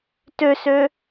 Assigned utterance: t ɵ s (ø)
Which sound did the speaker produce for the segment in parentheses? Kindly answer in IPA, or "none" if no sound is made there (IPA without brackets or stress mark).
ɵ